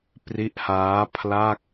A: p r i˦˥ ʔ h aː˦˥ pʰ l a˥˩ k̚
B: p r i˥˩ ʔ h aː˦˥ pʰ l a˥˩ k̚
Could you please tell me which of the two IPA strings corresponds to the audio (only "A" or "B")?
A